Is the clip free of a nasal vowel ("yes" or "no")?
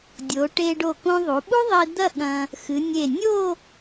no